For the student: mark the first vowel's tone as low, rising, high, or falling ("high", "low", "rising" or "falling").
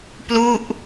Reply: falling